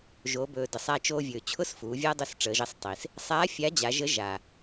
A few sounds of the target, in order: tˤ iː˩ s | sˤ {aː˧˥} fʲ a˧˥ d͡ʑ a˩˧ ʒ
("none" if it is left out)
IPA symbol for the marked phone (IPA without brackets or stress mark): aː˧˥